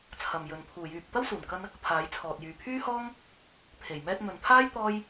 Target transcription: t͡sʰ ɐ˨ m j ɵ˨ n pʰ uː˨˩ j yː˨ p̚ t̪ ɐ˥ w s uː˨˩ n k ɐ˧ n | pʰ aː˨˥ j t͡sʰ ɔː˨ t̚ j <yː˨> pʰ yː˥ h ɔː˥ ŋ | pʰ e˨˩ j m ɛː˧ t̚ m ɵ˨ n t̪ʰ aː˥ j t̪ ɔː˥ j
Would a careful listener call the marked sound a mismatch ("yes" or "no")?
no